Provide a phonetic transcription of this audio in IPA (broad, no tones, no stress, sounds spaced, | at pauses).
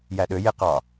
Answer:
j æ ɗ ø j e q ɑ